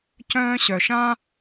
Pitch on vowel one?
high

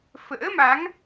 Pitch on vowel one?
rising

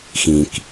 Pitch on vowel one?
low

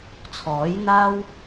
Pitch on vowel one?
rising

